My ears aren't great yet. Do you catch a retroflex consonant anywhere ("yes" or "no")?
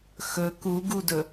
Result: no